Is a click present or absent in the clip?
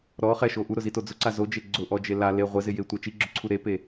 present